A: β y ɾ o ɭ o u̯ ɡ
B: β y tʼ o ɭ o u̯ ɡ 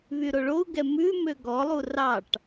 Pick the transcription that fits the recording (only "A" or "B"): A